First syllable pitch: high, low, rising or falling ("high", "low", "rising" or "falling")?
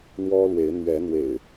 high